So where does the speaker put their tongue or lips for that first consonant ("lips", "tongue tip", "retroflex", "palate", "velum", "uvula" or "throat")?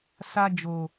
tongue tip